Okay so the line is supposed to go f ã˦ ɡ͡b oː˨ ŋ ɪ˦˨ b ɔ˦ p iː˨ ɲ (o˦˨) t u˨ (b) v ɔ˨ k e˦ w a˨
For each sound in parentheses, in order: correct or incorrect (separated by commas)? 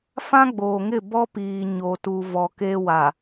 incorrect, incorrect